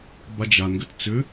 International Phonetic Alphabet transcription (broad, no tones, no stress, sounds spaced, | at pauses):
b a d͡ʒ a n ɡ ʏ t t͡s ʏ